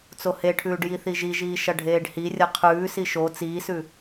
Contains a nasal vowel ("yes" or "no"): no